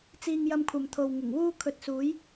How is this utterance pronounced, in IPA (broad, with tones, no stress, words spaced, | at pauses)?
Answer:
t͡siː˧ŋjɐ˧mkʷʰɐ˨mt̪ʰo˨w ŋɪ˨˩ŋwuː˥ kʰɵ˧t̚suː˨˥j